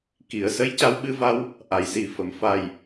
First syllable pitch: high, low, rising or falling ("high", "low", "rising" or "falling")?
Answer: low